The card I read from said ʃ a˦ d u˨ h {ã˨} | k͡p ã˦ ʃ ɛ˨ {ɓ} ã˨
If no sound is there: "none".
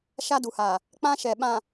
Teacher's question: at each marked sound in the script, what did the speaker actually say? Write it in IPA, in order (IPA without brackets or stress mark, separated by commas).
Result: a˨, ɓ